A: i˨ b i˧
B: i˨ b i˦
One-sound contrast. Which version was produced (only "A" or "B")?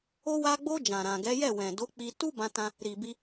A